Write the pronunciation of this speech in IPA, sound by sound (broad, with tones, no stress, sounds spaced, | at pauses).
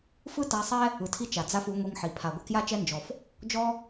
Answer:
f ɯ˦ t a˧ sˤ ɛ˦ | ɯ˨ tʰ i˧ t͡ʃ a˨ d͡z a˦ f u˨˦ ŋʷ i˧ ŋ ħ i˨ pʰ a˨ ɡʷ a˧ k j a˦ t͡ʃ ɛ˦ n d͡ʒ ɔ˨ f | d͡ʒ ɔ˦